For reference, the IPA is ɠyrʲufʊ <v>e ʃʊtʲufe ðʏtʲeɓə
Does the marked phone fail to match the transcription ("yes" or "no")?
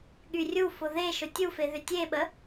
yes